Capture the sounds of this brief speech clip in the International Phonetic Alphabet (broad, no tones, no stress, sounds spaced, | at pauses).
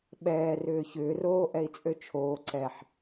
ɓ ɛː r ʏː ç ʏː r oː ʔ ɛ i̯ t͡sʼ ø t͡ʃʰ oː ǀ ɛ ħ